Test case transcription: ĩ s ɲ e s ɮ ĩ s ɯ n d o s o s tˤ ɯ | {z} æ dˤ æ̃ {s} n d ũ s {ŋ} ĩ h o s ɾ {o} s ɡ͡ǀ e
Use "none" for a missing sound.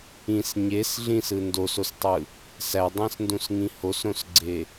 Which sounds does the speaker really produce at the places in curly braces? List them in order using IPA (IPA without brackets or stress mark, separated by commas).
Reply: s, s, ŋ, õ